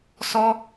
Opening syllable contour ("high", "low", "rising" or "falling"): high